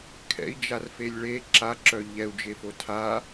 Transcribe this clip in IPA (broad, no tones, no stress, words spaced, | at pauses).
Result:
kʰɛ̰i̯d͡ʒarfelʲ ɭe ǁaǁœ ʎɛu̯d͡ʒefo tʰa